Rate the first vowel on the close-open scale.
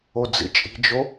mid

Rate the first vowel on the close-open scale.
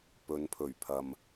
mid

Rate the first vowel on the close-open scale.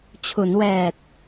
close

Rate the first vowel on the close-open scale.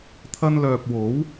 open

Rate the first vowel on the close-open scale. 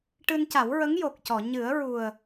close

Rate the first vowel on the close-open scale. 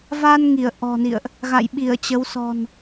open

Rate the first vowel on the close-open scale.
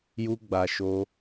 close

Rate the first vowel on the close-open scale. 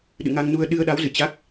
close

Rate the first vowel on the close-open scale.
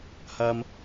open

